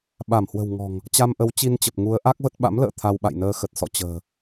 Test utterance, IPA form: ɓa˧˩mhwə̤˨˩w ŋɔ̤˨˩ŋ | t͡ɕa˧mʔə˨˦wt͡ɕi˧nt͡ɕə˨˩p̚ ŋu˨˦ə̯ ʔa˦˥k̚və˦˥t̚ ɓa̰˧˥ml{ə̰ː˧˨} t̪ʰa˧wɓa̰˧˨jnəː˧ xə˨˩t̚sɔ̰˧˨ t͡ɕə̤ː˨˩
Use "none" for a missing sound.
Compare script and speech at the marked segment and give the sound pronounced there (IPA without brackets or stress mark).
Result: ə̰ː˧˨